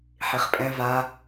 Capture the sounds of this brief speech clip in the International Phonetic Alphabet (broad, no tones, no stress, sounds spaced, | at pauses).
ħ i χ pʼ ɛ̃ v a